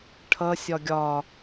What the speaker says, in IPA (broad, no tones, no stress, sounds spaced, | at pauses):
ʈʰ ʌ sʲ ɒ ɡʲ ɒ